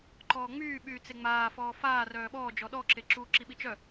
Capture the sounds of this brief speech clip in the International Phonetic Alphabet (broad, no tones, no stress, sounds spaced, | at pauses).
ǃ ɔː ŋ͡m yː ɓ yː t͡s e ŋ͡m aː f ɔː f aː r œː ɓ ɔː d͡ʒ ɔ ɗ ɔ ǁ e ǁ uː ǁ i ɓ i t͡ʃ œ